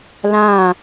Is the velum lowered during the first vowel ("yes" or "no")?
yes